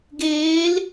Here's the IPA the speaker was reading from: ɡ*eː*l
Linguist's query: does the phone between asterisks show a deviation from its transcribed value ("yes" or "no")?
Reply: no